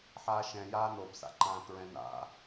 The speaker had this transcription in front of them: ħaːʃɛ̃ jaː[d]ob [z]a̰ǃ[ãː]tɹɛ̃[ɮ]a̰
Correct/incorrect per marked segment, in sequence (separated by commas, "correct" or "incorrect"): incorrect, incorrect, correct, incorrect